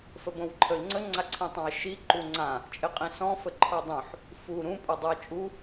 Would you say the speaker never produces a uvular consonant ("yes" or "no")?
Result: no